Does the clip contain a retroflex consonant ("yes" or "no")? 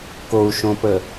no